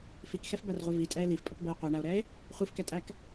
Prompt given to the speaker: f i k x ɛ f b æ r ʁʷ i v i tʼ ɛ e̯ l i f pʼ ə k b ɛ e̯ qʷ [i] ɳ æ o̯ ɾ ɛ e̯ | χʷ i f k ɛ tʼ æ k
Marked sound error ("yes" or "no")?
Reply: no